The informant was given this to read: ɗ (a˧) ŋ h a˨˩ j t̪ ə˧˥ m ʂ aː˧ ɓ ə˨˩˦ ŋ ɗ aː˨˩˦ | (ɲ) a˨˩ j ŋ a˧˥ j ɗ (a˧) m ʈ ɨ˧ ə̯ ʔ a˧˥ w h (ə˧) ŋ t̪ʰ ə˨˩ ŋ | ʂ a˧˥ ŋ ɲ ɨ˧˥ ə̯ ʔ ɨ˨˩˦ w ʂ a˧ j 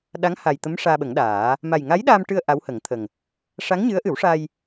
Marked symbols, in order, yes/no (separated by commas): no, no, yes, no